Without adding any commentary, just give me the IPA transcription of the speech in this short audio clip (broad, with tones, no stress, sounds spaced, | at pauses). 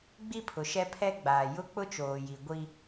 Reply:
ɡ͡b i˦ pʰ ʊ˨ ʃ ɛ˦ pʰ ɛ˦ ɡ͡b aː˨ j ʊ˦ k͡p ʊ˦ t͡ʃ oː˨ j i˨ ɡʷ i˦